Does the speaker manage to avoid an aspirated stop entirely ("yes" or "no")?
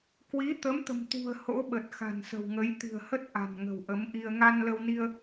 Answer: yes